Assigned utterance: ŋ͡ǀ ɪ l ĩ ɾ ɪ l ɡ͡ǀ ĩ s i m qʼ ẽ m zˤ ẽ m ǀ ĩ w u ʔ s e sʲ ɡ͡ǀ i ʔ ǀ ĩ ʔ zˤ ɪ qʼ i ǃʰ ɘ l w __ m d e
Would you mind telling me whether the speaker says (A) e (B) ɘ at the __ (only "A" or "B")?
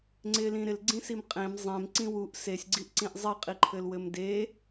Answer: B